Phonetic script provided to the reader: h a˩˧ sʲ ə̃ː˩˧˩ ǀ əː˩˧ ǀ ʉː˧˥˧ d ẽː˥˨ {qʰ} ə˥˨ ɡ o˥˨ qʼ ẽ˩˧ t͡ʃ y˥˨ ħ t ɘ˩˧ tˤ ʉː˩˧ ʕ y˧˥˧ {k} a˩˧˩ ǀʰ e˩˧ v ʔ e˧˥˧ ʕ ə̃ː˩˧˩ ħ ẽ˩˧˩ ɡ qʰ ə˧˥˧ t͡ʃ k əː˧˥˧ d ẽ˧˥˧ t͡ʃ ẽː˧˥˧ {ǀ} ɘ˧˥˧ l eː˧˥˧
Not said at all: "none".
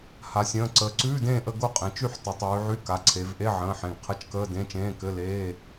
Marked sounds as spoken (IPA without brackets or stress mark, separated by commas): ʔ, k, k